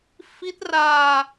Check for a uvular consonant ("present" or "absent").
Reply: absent